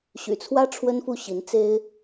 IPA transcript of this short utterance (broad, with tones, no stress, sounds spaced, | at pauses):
ɕ y̰˨˩ t͡sʰ w ä˥ ʈ͡ʂʰ w ə˥ n f u˥˩ ɕ i˧˥ n t͡s e˥ ɪ̯